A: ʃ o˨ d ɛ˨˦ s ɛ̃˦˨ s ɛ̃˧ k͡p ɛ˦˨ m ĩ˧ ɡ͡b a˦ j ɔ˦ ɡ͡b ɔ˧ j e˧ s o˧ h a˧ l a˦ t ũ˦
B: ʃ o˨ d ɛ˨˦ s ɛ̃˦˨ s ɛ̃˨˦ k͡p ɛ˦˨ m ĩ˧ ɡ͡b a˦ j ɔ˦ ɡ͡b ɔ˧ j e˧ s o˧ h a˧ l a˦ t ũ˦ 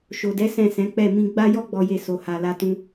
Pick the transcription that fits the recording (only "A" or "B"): B